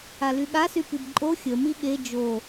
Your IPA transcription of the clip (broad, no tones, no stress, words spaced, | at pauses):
alyɠasy pibǃʼo xʲə miɠe d͡ʒo